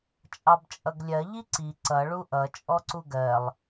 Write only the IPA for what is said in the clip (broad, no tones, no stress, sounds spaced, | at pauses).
t͡ʃʼ ɑ b t͡ʃʼ ʌ ɡ lʲ ɜ ʎ i ǀ i ǀ ʌ ɭ u ʔ ʌ t͡ʃʼ ɔ ǀ u ɡ ɜ lˠ